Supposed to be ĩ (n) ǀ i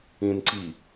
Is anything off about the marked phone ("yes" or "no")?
no